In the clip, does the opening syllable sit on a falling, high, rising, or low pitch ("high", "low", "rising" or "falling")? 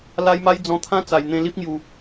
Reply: high